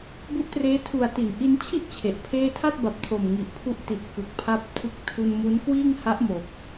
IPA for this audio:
b u˦˥ ʔ t r eː˦˥ tʰ u˨˩ a̯ t i˩˦ n ʔ i˧ n t͡ɕʰ i˥˩ ʔ t͡ɕʰ e˨˩ ʔ pʰ eː˥˩ tʰ a˥˩ t̚ b a˨˩ p̚ tʰ o˨˩ m ŋ i˨˩ ʔ pʰ u˦˥ ʔ t i˨˩ t̚ k ɯ˨˩ k̚ pʰ a˦˥ p̚ tʰ ɯ˦˥ k̚ tʰ u˧ n m u˦˥ n k w iː˥˩ ŋ h a˦˥ ʔ m o˨˩ k̚

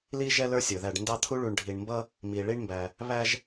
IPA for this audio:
l i˦ ʒ ɛ˦ l ə˞˦ sʲ ə˞˩ ð æ˨ ɖ n d ɑ˦ t̪ʰ u˥ ɭ u˨ ɳ ɖʱ i˨ ɳ m b ʌ˥ | m i˩ ɭ i˦ ɳ m b æ˨ | β æ˦ ʒ

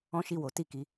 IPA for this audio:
ɔ̃˦ ʃ i˦˨ w o˨˦ t i˦˨ k i˨˦

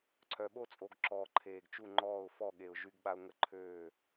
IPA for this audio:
ǀʰ œ˨ ɓ o˦ t͡sʼ o˨ ɡ ǁ ɔː˨ ǃʰ eː˨ ɡ t͡ʃ u˥˨ ŋ͡ǃ ɔː˥˨ ʊ̯ f ɔ˥˨ ɠ e˨ ʊ̯ ʒ y˦ ɡ ɓ a˦ ʊ̯ ŋ ə˥˨ ǃʰ ø˥˨

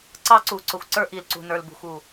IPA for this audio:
ǀ ɑ˦ ǀ u˨ ǀ ʊ˨ xʷ ǀ ə˞˦ ʔ i˨ l ǀ ṳ˨ n ə˞˨ l b ṳ˨ xʷ u˨

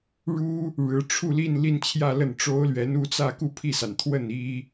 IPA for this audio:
ɻ u˥ | ɻ ɻ̩˧˥ ʈ͡ʂʰ u˥˧ l i˥˧ n l i˥˧ n t͡ɕʰ j ä˥˧ l ə˥˩ n ʈ͡ʂ o˥ ʊ̯ l ɥ ɛ˧˥ n u˥˧ t͡s ä˥˧ k u˥˧ pʰ i˥˩ s a˩ n t̪ʰ w ə˥˩ n i˥

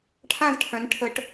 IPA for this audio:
ʈʰ ã˥˧ z ʈʰ œ̃˨˦ n ʈʰ ə˨˦ ʈ

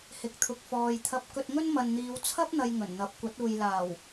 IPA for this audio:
h ɪ˨ k̚ t̪ʰ ʊ˨ k̚ f ɔː˨ j t̪ʰ ɐ˧ p̚ k ɵ˧ t̚ ŋ ɵ˥ n m ɐ˨ n n̪ iː˨˧ w t͡sʰ ɐ˥ p̚ n̪ ɐ˧ j ŋ ɵ˨˩ n n̪ ɐ˨˥ p̚ kʷ ɐ˨˥ t̚ uː˨ j l aː˨˩ w

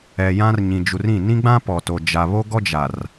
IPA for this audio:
ɛ˨ j ã˦ r ɲ ĩ˨ d͡ʒ u˨ r ĩ˦˨ n ĩ˦ ɡ͡b ã˦ p ɔ˨ t o˨ d͡ʒ a˨ β o˦ ɡ ɔ˦ d͡ʒ a˨ r

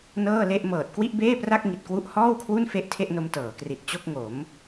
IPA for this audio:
n ɤː˥˩ l e˥˩ ʔ m ɤː˨˩ t̚ k w i˥˩ ʔ b eː˥˩ p r a˥˩ k̚ ŋ i˨˩ t̚ k w u˦˥ ʔ h ɔː˥˩ w kʰ w u˥˩ n f e˥˩ ʔ tʰ e˥˩ ʔ n o˧ m t ɤː˩˦ k r i˨˩ t̚ t͡ɕ o˥˩ k̚ ŋ o˩˦ m

